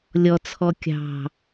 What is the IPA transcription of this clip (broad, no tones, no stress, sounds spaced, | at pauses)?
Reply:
lʲ ɔ t͡sʰ ɔ kʲ ɑ̤